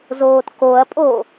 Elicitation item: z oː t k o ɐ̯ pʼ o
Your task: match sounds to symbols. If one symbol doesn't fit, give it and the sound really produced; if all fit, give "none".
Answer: none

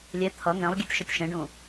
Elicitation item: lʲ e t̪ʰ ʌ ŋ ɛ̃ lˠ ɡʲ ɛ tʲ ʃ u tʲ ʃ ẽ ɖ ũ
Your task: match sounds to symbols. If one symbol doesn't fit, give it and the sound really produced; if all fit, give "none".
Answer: none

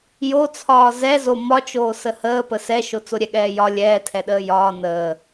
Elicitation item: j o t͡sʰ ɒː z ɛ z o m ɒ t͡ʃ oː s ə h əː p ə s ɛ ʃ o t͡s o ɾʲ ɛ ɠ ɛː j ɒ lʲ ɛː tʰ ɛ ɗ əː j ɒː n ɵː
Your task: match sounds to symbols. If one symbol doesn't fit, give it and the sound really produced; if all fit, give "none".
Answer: ɵː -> əː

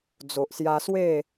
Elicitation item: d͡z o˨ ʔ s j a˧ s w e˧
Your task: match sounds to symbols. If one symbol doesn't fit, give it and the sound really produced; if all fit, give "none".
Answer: e˧ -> e˥˧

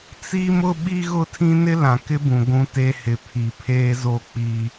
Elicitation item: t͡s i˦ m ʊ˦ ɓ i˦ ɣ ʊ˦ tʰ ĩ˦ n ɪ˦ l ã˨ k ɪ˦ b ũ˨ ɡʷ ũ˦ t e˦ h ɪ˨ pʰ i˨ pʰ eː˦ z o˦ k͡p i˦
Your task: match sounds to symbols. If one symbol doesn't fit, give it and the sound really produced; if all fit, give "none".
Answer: none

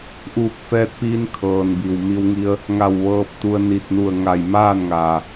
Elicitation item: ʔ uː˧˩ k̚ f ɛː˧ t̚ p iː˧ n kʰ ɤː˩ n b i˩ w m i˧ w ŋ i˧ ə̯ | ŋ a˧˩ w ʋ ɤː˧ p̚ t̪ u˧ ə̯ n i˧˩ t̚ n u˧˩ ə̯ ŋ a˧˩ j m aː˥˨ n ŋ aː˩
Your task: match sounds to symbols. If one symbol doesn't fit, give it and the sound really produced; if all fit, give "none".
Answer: none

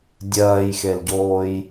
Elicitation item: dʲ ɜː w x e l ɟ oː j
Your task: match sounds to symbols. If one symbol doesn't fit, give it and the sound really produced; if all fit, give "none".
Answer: w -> j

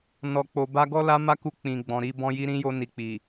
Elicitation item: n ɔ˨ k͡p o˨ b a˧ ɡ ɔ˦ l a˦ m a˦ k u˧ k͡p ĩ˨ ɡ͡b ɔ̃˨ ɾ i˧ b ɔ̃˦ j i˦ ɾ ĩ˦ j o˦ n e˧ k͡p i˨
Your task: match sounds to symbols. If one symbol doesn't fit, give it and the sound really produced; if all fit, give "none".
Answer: e˧ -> i˧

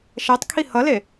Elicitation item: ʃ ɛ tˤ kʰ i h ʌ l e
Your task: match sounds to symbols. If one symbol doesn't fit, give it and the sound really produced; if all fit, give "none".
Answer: none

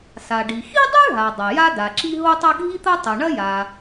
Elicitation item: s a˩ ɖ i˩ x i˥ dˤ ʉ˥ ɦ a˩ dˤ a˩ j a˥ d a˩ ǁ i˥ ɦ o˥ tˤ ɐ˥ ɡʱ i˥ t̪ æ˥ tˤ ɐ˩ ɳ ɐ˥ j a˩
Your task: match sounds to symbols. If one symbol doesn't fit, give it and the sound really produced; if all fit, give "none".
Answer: æ˥ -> ɐ˥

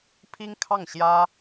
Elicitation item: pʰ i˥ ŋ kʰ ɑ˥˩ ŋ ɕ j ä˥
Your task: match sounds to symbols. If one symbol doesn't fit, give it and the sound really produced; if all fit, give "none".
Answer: none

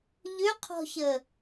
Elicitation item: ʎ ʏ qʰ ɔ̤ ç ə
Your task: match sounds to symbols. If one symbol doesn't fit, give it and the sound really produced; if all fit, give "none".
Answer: none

